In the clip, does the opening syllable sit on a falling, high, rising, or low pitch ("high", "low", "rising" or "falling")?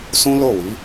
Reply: high